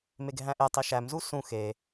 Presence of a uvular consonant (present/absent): absent